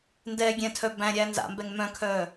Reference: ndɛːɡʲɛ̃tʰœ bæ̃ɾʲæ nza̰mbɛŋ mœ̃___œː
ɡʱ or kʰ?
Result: kʰ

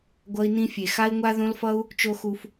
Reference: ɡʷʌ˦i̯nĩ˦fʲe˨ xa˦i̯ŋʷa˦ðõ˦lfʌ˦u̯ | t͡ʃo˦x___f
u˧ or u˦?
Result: u˧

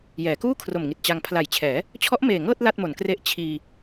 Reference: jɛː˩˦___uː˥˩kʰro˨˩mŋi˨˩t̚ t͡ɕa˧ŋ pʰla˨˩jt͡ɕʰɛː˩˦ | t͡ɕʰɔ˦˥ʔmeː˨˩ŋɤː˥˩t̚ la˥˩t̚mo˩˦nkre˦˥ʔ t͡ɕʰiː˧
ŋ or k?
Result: k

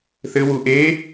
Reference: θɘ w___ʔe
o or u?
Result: u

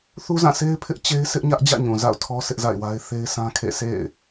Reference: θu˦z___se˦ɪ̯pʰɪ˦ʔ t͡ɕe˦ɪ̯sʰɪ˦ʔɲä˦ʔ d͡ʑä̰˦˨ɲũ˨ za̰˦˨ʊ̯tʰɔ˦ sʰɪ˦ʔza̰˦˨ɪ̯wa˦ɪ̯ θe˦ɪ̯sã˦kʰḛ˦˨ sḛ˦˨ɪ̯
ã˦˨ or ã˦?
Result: ã˦˨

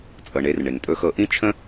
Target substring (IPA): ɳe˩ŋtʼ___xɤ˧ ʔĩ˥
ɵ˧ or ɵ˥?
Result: ɵ˧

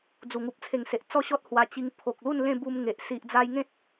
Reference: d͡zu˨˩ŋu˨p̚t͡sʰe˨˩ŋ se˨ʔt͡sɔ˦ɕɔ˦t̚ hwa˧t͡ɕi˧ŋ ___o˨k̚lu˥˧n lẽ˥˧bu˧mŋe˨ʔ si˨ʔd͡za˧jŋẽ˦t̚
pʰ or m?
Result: pʰ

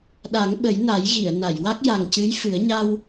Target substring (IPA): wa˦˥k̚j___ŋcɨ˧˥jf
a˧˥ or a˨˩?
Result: a˨˩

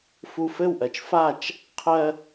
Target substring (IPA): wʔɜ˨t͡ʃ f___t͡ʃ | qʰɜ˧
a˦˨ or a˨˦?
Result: a˦˨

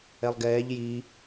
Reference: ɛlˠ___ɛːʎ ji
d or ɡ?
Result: ɡ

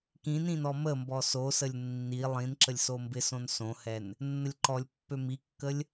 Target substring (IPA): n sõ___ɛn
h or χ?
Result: h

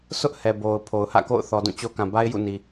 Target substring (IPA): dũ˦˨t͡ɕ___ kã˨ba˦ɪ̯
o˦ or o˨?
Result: o˦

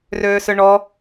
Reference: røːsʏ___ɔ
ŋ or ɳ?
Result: ɳ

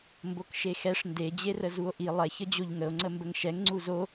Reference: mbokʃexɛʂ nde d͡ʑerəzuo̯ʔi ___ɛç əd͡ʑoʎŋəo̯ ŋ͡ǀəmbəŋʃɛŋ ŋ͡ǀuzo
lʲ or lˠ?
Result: lˠ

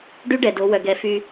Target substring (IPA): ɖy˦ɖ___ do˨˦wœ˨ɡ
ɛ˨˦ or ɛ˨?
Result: ɛ˨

